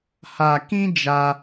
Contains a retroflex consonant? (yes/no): no